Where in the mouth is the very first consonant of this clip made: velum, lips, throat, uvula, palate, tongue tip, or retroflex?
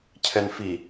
palate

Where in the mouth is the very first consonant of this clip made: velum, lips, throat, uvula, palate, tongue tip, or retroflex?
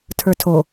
tongue tip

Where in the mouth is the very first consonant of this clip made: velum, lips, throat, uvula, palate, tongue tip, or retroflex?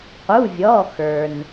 uvula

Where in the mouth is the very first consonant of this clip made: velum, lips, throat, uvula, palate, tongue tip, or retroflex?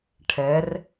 retroflex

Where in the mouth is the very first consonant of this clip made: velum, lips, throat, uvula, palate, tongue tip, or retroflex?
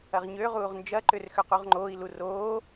uvula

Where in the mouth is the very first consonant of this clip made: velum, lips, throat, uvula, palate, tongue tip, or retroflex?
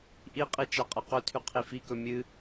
throat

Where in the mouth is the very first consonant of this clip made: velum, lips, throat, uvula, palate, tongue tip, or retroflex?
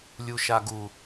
tongue tip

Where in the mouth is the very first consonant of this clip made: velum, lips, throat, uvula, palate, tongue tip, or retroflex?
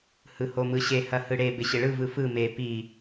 throat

